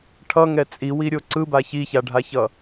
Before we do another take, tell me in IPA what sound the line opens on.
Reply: ʈʰ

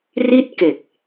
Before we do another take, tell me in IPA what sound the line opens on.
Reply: r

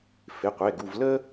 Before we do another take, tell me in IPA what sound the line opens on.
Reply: f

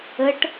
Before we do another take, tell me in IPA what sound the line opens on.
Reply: ə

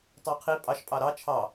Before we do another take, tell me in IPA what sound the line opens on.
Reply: tˤ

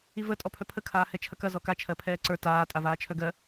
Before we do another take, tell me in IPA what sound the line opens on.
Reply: i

